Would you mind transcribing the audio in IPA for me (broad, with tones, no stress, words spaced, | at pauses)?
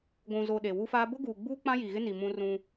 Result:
ɡʷũ˨zo˨ ɗe˨wu˦faː˦ bʊ˦ɡuː˨ɡ͡buː˦ k͡pã˦ji˨ɣɪ˦ni˨ mũ˦rũ˦